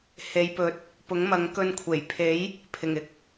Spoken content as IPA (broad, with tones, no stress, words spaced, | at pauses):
he˨˧jpɵ˨t̚ | pʊ˨˥ŋmɐ˨˥ŋ kɵ˧nkʷʰe˨˩j pʰe˨˥j | pʰɪ˨˩ŋɪ˥k̚